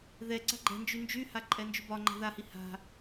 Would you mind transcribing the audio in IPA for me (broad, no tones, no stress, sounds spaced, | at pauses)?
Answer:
ð ɛ ǀ a̤ ɡ͡ǃ ɛ̤ n d͡ʒ y n d͡ʒ y h a ǃʼ ɛ n d͡ʒ y b ɒ ŋ͡ǃ a̤ ð a h i h a̤